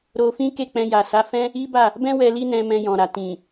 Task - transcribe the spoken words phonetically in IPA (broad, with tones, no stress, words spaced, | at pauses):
ɾo˧fĩ˦ke˦˨ k͡pɛ̃˧ja˨sa˨˦fɛ̃˦ | i˦ba˦˨ | bɛ̃˦ wɛ˧li˦nɛ̃˧ mɛ̃˧jɔ̃˨ɾa˨ tĩ˨